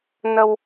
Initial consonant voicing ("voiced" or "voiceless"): voiced